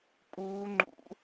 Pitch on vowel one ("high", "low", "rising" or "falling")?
high